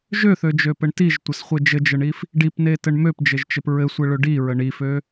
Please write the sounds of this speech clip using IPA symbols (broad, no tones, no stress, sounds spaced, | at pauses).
ʒ ø θ ø d͡ʒ ø p ɘ ɳ t i ʒ tʷ ə s χʷ e d͡ʒ ɘ d͡ʒ ə ɳ i f | ɖ i p n e t ɘ ɳ m ø p d͡ʒ ɘ ʒ t͡ʃ ɘ p ɹ ɘ sʷ e ɭ ø ɖ i ɹ ə ɳ i f ø